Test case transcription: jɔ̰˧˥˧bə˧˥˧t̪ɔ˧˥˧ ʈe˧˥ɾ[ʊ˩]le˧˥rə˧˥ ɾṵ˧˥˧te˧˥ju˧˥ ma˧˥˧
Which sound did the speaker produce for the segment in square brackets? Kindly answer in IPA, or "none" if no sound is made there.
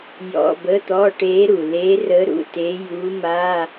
u˩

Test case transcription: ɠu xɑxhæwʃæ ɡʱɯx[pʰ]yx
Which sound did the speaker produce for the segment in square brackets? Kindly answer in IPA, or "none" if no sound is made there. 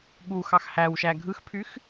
pʰ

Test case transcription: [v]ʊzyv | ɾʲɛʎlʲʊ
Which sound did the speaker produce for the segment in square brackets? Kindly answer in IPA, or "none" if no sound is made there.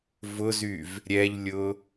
v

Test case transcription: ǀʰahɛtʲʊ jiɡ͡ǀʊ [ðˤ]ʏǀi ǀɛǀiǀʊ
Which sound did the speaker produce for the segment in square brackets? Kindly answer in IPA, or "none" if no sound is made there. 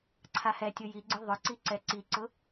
ðˤ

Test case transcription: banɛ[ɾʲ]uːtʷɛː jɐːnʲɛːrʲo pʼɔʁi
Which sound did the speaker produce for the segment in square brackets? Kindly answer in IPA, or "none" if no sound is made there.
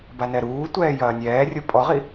ɾ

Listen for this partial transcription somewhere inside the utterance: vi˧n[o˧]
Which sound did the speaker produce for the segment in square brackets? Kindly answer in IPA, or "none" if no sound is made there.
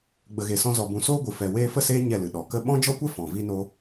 o˧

